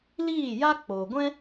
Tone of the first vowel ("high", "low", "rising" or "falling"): falling